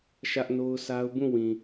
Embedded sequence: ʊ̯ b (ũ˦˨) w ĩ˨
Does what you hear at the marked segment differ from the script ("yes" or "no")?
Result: no